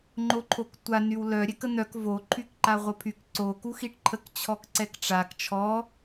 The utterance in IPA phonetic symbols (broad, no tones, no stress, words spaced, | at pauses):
ŋ͡ǃoǃʰoktʷa nywlœ ɾʲɛkən̪œk vo ǃʰykǃaʁʷəpʰyk ǀo kuxiʈǃʰək t͡ɕʰɔkǀɛkʈ͡ʂak t͡ʃʰɔ